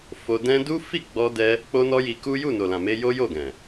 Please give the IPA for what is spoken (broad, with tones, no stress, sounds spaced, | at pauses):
f o˧ d ɛ̃˦ d u˦ f i˦˨ ɡ͡b ɔ˧ d ɛ˦ | k͡p o˦ n ɔ˦ j i˧ k u˦ j u˦˨ n o˨ l ã˨ m e˧ j o˦ j o˦˨ ɡ ɛ̃˨